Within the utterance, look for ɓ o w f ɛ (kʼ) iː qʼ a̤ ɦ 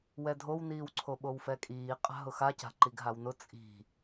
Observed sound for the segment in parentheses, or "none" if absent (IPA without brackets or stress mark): kʼ